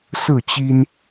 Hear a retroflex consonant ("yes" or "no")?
no